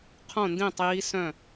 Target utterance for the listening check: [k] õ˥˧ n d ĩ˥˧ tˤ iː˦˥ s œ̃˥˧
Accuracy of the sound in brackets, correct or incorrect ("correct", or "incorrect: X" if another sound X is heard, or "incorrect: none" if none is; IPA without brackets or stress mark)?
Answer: incorrect: qʰ